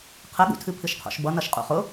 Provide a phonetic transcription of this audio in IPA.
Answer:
qʰəɠṵtʰɨ pʰɨʃqʰo̰ʃbʌ nʌʃqʼṵχʊ

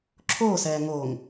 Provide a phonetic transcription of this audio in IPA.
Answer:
ǁʰoːsɛː ŋoːŋ

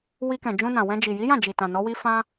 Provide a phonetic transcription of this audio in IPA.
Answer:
wi˧ kɛ̃˨ d͡ʒũ˧nã˨wɛ̃˧ d͡ʒi˨ji˨˦jã˦˨d͡ʒi˨ tã˨nɔ˨˦wi˦ fã˦

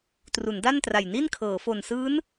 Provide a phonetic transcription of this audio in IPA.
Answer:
tru˩˦nda˥˩ntra˨˩j ni˥˩nkʰɤː˩˦ fo˨˩nsɯː˦˥n

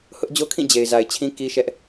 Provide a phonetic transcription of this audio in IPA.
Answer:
hʊ˦ʔd͡ʑo˦kʰĩ˦˨ d͡ʑe˨ɪ̯za˨ɪ̯t͡ɕʰĩ˦ ki˦ʃɛ˦ʔ

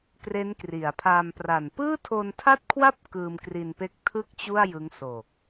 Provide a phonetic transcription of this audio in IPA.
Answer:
kre˦˥nkri˩˦a̯pʰa˧m pra˨˩n pɯː˥˩tʰo˧ntʰa˥˩t̚kʰwa˥˩p̚ kɯː˧mkri˧npe˦˥k̚ tʰɯ˥˩k̚ t͡ɕu˥˩a̯jɯ˦˥ŋ so˨˩k̚

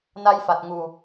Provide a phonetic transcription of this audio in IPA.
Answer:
na˧jfa˨˩t̚ ŋu˨˩

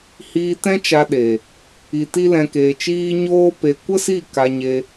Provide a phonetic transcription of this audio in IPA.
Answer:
hiː˧tɛ̃˦t͡ʃa˧ɗe˨ | i˧ti˦lɛ̃˧ keː˧t͡ʃiː˦ ɲoː˦pe˧ kʷə˦si˦˨ ka˧ɲe˧

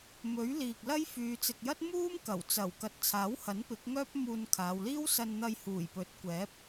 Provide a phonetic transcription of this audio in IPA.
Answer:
mɵ˨˥ɥ liː˨k̚lɐ˥jfyː˨˧ t͡sɪ˨k̚jɐ˥t̚ muː˥mkɐ˨˩wt͡sɐ˨˩w kɐ˨t̚t͡sʰaː˨˥whɐ˨˥n pɪ˨˥k̚ŋœː˥p̚muː˧nkʰaː˨˧w liː˥wsɐ˧nn̪ɐ˧j huː˨˩jpɵ˨˥t̚kʷɛː˨˥p̚

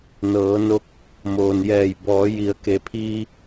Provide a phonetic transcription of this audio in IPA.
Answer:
nɤː˩˧no˧˥k̚ | moː˩njɛː˧˩j bɔː˩˧ji˩˧ə̯ ke˩˧pʰiː˧

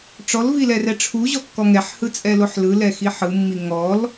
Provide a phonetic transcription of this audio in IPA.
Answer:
ʈ͡ʂɔlvilɛrɛ ʈ͡ʂʰuʑɔkːɔ ŋɛħhɯt͡sʼɛloħ lɯlɛxi ħɯmːi ŋɔl

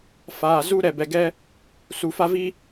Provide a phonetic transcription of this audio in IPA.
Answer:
faː˨zu˦ ɾɛ˨bɛ˨ɡɛ˦ | su˨fa˦vi˦

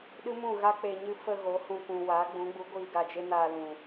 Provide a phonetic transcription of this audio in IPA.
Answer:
ɗɨ˦mũ˦˨ɣa˦ k͡pe˧ɲɨ˦ fə˧ ɣo˨˦ hũ˧ kʷũ˨ waː˨˦ɡ͡bũ˨˦ɡ͡bu˨˦ɡʷiː˧ ɡa˧d͡ʒe˦naː˧lũ˨

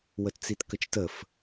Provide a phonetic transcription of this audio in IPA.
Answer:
wətt͡sitkət͡ʃtəf

